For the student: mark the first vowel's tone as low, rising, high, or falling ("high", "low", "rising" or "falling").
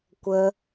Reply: high